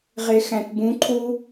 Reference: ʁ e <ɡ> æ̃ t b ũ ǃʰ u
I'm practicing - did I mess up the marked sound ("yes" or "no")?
yes